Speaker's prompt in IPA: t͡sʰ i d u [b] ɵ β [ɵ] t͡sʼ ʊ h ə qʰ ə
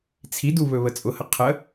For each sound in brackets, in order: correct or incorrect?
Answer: incorrect: β, incorrect: ə

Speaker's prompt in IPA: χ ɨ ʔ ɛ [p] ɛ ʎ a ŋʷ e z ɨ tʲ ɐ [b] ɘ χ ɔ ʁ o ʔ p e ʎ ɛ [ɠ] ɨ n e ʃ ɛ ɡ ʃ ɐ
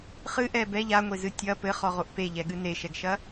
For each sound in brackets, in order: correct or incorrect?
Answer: incorrect: b, incorrect: p, correct

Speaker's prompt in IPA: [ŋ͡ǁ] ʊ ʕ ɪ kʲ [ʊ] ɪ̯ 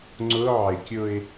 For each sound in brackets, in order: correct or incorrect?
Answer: incorrect: ŋ͡ǀ, correct

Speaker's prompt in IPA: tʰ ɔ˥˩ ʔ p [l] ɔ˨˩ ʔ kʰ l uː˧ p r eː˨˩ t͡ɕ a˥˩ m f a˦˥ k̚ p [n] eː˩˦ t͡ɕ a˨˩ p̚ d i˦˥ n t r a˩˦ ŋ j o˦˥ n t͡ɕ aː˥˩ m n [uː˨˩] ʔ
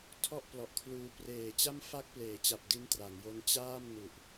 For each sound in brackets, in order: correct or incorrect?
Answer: correct, incorrect: l, incorrect: u˨˩

